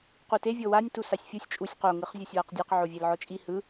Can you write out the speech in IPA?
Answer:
q u t e vʲ ɤ w a nʲ t u s a sʲ fʲ u sʲ t͡ʃʼ u sʲ q o ŋ ɯ χ zʲ ɤ sʲ w a q dʲ ɛ q ʕ o vʲ e l ʕ ɔ t͡ʃʼ i h ɯ

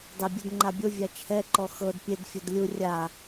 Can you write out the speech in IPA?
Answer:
dˤ e bʲ ɯ d ŋ͡ǃ a bʲ o vʲ a t͡ʃʰ ɛ ǃ ɔ x ɤ d pʲ e d fʲ o d lʲ u rʲ a

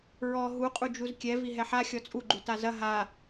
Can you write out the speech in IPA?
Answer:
ɹ ɔ ɦ u qʼ u d͡ʒ u z kʲ ɛ v i ɦ ɛ ħ a xʲ ɔ t͡sʼ u ɡ͡ǃ u t a z ɐ ɦ a

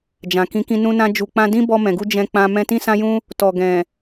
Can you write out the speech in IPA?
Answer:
d͡ʒ ã˨ k ĩ˨˦ k ĩ˧ n ũ˧ n ã˧ d͡ʒ u˨ k͡p ã˧ d ĩ˦ b ɔ˧ m ɛ̃˨ ɡ u˧ d͡ʒ ɛ̃˧ k͡p ã˧ m ɛ̃˧ t ĩ˦ s ã˦ j ũ˦ | t ɔ˨ ɡ ɛ̃˨

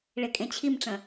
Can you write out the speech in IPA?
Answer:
ɭ e kʼ ẽ t͡ɕʰ i m ʈ͡ʂ ə̃

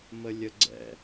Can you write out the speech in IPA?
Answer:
m ə lʲ ə ɡ͡ǀ ɛ̰

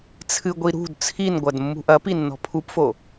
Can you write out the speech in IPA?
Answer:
t͡sʰ ɨ ɡʷ i ɾ ṳ d t͡sʰ i n ɡʷ ɐ d mː ṳ ʔ ɐ p i nː ɔ̤ pʰ u p f o

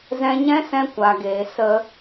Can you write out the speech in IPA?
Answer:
z ɛ̃˧ ɲ ɛ̃˦ s ɛ̃˧ kʷ a˨ ɡ eː˨ s ə˧

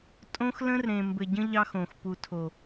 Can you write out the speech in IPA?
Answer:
tʼ õ˦ x l ə̃˦ r ɾ ẽ˨ m b ɘ˨ ɟ ə̃˦ ʎ ɑ˦ x õ˨ x p u˨ tʰ o˨

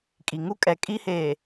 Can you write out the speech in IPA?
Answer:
kʼ i˨ ŋ u˦ kʼ ɛ˨ kʼ i˦ h eː˨

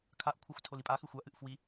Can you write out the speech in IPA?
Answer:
kʰ a ʔ kʷʰ a xʷ tʰ o l i pʼ a x ʉ xʷ a ʔ ɨ ʔ f w i

